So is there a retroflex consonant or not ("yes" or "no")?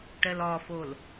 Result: yes